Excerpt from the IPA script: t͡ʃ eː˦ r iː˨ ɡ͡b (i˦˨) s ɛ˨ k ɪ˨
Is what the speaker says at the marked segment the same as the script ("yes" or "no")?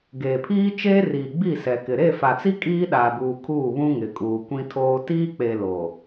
yes